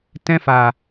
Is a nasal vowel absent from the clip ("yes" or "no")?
no